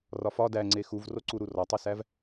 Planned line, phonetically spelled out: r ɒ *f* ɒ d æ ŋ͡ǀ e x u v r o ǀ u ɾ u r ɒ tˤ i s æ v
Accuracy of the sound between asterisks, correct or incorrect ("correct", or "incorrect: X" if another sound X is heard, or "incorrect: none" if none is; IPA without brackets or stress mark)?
correct